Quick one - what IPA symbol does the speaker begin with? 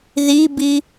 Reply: ð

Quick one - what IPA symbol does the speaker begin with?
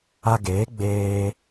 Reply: a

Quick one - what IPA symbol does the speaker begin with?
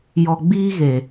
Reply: j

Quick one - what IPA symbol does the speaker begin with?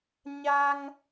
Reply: ɲ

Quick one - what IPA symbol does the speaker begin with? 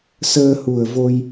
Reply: s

